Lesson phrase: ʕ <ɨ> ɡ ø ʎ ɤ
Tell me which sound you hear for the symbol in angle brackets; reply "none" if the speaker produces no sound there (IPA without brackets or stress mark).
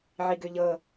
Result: i